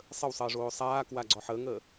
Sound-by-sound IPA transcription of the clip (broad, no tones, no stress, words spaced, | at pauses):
sˤəwsˤəːʐoː sˤaː kwaɡ͡ǀɔħəːŋəː